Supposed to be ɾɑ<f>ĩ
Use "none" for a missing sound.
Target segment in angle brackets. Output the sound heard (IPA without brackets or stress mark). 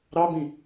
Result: b